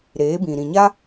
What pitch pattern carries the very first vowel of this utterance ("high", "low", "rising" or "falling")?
rising